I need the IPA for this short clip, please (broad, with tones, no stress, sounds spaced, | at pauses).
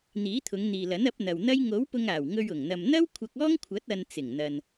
n̪ iː˨˥ t̪ʰ ʊ˨˧ ŋ n̪ iː˨ l ɐ˨˥ n ɐ˨˥ p̚ n̪ ɐ˨ w n̪ ɐ˥ j ŋ o˨˥ w p ʊ˧ ŋ aː˨˩ w ŋ ɵ˧ ɥ ʊ˨˩ ŋ n̪ ɐ˧ m n̪ ɐ˥ w kʷʰ ɐ˧ k̚ ɔː˥ ŋ kʷʰ ɐ˨˥ t̚ ɐ˧ n t͡s ɪ˨˩ ŋ n̪ ɐ˨ n